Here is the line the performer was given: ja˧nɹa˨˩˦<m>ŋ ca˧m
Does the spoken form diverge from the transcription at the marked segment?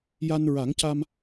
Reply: yes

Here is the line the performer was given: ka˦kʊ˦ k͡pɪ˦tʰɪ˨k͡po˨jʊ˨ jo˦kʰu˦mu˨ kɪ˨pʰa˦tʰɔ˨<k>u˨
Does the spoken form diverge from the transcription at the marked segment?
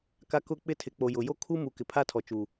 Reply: yes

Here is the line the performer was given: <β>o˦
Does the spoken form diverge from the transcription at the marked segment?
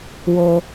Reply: yes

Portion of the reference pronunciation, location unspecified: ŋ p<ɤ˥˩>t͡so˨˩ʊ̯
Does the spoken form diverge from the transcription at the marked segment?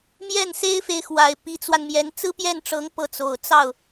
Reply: no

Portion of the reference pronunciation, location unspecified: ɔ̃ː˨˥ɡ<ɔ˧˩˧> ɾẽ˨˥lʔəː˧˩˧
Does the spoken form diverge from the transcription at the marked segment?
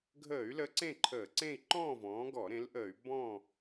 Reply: no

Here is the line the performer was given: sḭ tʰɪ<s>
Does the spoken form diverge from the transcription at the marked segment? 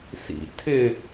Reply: yes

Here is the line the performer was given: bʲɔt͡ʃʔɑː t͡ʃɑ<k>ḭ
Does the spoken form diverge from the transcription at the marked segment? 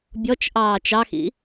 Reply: yes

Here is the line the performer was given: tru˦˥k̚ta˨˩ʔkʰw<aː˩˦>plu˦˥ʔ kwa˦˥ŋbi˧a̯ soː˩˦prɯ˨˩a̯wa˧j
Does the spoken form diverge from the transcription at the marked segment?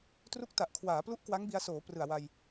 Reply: no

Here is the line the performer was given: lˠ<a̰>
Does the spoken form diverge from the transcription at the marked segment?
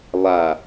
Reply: yes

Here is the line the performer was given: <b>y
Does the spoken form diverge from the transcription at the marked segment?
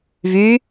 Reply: yes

